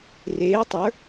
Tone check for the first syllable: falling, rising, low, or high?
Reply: rising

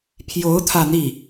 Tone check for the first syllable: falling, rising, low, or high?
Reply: rising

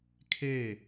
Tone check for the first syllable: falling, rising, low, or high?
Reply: falling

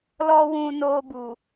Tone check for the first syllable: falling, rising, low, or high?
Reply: high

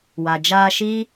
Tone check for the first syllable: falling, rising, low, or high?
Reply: low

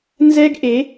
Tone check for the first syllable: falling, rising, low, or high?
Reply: high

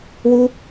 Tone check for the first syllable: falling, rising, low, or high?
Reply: high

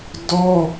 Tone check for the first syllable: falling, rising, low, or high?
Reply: high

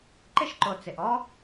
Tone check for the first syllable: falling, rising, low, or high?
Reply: high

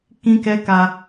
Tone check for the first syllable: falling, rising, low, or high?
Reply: high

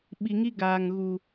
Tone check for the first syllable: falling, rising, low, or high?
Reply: low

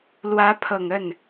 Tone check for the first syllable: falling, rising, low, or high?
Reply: rising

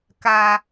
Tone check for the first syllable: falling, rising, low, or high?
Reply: low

